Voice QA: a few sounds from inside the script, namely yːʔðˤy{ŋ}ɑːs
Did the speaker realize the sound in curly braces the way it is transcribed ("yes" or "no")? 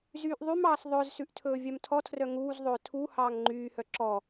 no